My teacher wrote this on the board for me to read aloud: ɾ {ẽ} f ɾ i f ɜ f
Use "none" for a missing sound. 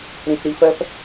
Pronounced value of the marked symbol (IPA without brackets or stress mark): ĩ